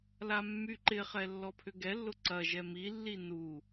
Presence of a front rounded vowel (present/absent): present